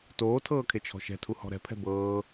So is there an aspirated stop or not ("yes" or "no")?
yes